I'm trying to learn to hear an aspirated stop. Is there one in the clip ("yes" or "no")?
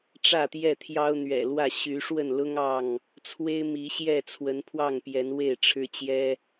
yes